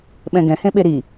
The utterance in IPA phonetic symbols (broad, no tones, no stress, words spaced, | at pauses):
ɓɛ̃ɡɛ̃ hẽɓeɾi